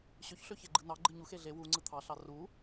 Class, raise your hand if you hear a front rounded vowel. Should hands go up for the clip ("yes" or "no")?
yes